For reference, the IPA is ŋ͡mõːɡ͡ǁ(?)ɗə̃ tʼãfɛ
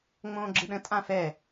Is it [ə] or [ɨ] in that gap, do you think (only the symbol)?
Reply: ɨ